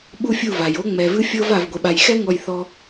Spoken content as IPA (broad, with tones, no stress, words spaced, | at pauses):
ɓu˦fʲu˦˨va˨j o˦ŋ͡mɛ˨vɨ˦ fʲɤ˦v a˨vɡʷe˨ɓa˨jxɛ˦ ŋɔ˦˨jθɔ˦